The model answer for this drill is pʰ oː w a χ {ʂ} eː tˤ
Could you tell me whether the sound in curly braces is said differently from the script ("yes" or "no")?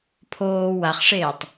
no